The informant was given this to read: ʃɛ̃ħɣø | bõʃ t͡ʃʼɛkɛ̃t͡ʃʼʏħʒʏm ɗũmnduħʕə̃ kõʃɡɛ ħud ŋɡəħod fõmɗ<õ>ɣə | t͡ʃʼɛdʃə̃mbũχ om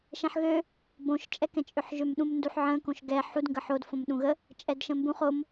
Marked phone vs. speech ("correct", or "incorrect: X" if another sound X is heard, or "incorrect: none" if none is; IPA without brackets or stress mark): incorrect: ũ